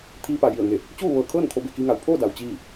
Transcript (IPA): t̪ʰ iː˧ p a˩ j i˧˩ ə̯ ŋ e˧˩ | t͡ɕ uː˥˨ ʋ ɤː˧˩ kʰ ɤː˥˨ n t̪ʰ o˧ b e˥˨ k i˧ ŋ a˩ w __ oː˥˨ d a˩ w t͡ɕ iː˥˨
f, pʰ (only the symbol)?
pʰ